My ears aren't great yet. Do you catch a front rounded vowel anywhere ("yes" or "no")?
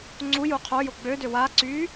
yes